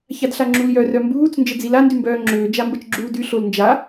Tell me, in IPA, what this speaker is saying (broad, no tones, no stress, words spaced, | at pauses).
çadɬaŋ͡ǁuljœ rœmbuːt͡s nd͡ʒəd͡zila ndymbœːŋ͡ǁøː d͡ʒambət͡ʃɡ͡ǁuːdy ɬolnd͡ʒa